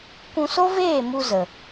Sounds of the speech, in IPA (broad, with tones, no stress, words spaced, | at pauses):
kʷũ˧so˦veː˦˨ mu˧zə˨